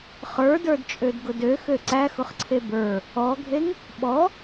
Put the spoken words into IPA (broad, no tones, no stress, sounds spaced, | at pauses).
χ ə˞ d ə˞ d t͡ʃʼ ø d ɡ ʊ d ø x ø ǀ æ x ʊ χ ǀʰ e b ə˞ | ɔ ɡʱ e ŋ | ɓ ɔ